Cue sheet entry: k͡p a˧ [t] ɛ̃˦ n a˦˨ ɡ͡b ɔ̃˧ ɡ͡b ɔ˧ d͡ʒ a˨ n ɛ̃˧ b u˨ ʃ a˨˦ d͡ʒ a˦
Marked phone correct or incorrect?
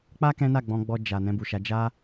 incorrect